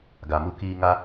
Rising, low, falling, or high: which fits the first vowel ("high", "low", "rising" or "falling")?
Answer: low